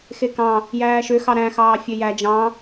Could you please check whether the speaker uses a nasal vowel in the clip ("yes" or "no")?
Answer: yes